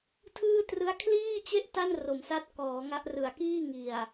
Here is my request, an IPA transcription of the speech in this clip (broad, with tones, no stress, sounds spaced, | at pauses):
tʰ ɯː˥˩ t r ɯ˦˥ a̯ kʰ l iː˥˩ t͡ɕ e˥˩ ʔ t a˥˩ n r o˩˦ m s a˦˥ t̚ k ɔː˩˦ ŋ a˦˥ ʔ r ɯ˨˩ a̯ k iː˥˩ ŋ i˨˩ a̯